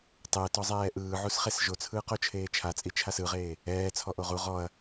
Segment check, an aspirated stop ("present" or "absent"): present